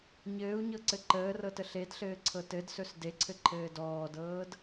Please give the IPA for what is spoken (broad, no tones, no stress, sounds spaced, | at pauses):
ɲ ɘː u̯ ɲ ɤ ǀ ɘ ǃ əː r ɤ t ə ɬ e d ɬ ɘː ǀʰ ɤ t ɘ d s ɵ s d e ǀʰ ɘ ǃʰ ɘː d ɔː d ɤː d